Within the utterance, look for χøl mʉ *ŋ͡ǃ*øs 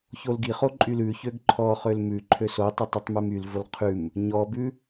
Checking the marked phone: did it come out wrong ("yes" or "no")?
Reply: yes